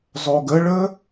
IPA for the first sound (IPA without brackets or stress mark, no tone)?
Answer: zˤ